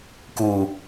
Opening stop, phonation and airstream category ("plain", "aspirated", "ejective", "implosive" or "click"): plain